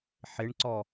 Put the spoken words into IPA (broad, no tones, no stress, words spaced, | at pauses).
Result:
ħɪɳǀɔ